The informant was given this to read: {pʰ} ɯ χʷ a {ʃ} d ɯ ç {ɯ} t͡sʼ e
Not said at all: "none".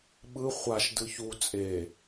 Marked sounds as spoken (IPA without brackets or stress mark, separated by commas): ɓ, ʃ, u